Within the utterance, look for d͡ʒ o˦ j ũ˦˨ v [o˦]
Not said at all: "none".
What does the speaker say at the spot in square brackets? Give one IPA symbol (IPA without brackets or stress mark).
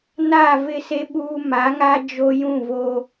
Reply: o˦